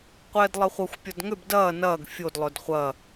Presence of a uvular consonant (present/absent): present